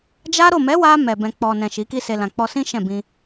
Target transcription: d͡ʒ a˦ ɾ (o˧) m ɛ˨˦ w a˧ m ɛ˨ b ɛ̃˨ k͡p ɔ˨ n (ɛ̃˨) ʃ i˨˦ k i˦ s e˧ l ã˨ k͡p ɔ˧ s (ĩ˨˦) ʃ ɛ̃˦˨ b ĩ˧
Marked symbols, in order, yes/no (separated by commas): no, yes, no